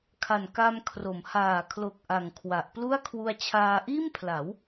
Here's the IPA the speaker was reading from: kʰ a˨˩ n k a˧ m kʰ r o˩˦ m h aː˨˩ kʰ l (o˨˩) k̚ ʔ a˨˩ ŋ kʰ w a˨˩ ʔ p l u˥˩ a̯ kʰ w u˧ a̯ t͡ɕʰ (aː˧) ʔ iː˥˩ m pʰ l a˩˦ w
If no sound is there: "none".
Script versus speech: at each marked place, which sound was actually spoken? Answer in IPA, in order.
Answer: o˨˩, aː˧

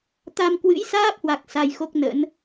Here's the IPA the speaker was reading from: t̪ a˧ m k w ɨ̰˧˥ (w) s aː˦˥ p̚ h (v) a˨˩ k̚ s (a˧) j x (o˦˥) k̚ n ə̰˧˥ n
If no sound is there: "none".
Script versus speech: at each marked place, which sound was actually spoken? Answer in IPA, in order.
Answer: j, w, a˧, o˦˥

